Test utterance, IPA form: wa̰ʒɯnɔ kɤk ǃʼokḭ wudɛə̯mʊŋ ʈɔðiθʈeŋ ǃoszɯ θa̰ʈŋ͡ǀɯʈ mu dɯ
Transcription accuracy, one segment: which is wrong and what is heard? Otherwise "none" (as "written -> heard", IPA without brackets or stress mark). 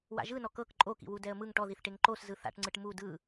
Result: ʊ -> ɯ